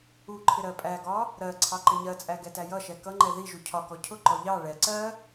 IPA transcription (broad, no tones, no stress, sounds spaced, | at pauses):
u ǃʰ ɪ ɾ ɜ pʼ æ ɡ ɒ | ɾ ɜ ǀʰ ɑ ǃ ɪ ɲ ɜ t͡sʼ æ ɡ ɛ t æ j ʌ ʃ ɛ k ʌ ŋ͡ǃ ɛ ð i ʒ u cʰ ɒ k ɔ cʰ ʊ ǃ ɔ ʎ ɑ ɭ ɛ ǀ ɜ